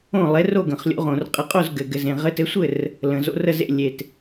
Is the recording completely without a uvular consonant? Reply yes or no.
no